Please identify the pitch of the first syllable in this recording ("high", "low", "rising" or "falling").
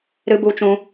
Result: high